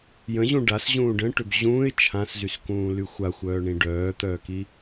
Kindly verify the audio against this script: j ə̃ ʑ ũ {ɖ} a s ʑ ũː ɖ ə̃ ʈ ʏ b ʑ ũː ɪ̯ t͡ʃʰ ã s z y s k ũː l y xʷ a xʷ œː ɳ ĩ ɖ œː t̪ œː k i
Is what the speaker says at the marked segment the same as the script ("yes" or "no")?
yes